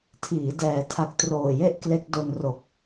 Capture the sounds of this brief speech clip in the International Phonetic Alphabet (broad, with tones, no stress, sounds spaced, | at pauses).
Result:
tʰ iː˩˦ d ɛː˩˦ tʰ a˨˩ k̚ t r oː˨˩ j e˦˥ ʔ k l e˦˥ k̚ d o˧ n r o˨˩ k̚